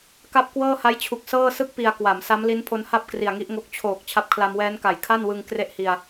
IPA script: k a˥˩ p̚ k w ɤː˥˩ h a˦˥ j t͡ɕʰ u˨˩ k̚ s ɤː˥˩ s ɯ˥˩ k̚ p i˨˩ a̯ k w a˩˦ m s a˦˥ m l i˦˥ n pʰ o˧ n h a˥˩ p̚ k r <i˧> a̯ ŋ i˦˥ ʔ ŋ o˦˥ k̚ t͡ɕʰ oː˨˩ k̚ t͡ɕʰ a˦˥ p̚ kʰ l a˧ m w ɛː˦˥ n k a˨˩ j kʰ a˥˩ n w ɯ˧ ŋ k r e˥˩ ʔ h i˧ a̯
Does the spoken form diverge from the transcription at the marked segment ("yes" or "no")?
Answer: yes